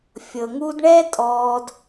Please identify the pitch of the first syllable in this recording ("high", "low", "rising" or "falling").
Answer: low